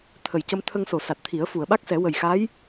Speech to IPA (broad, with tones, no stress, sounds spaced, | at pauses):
t̪ʰ ə˨˩ j c ə˧ m t̪ʰ ə˧ ŋ s o˨˩˨ s a˨˩ t̚ t̪ʰ i˨˩˦ ə̯ f u˨˩˨ ə̯ ɓ a˦˥ k̚ s ɛ˨˩˦ w ə˨˩ j x a˧˥ j